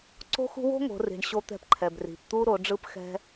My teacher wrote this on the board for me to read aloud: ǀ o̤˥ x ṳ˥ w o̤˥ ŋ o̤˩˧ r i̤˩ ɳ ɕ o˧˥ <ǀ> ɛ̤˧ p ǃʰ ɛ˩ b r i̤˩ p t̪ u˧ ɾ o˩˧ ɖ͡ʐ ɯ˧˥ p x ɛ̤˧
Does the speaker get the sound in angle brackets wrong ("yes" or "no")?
yes